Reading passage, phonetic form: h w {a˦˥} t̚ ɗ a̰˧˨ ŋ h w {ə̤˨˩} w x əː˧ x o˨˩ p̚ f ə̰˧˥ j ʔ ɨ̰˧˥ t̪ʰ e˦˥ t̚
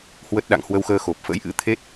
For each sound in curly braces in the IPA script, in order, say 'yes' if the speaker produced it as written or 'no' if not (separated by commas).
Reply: no, no